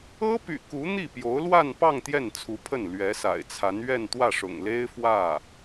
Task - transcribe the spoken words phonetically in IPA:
ɤ˥ p y̰˨˩ k u˧˥ n̪ i˥˩ p j o˧˥ ʊ̯ l w a˥˧ n p ɑ˥˧ ŋ t̪ j ɛ˥˩ n t͡sʰ u˧˥ pʰ ə˥˩ n l ɥ ɛ˧˥ s a̰˨˩ ɪ̯ t͡sʰ a˧˥ n ɥ ɛ˥˧ n t̪ w ä˥˩ ʂ ʊ̰˨˩ ŋ l e˥ ɪ̯ f w ä˥˩

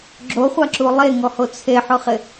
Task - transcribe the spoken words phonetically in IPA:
ɡ͡ǁ o χʷ a ǁ u lˠ e ŋ ɔ h o t͡sʰ e ħ ʊ χ ɪ

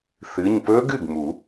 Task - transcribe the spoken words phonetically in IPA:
θ ɨ˩˧˩ ɲ p ɵ˦˥ ɡ ɨ˥˩ ɡ m u˨˩˦

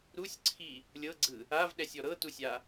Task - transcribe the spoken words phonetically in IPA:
ɾ u sʲ ǀʰ i | lʲ ɤ ɡ͡ǀ ɯ | a v ɗ ɛ sʲ ɔ ɾ ɤ t u sʲ a

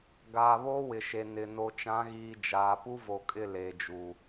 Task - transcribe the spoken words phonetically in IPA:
ɡ aː˨ β oː˦ w ɪ˨ ʃ e˨ n ɪ˨ n o˨ t͡ʃ ã˨˦ ɣ iː˨ d͡ʒ aː˨ p u˦ v o˨ kʼ ɪ˦˨ l eː˨ d͡ʒ u˨

